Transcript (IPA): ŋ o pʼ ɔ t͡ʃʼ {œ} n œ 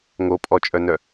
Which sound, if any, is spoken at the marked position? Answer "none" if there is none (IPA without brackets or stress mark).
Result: œ